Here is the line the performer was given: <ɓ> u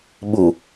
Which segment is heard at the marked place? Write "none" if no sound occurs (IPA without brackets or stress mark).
ɓ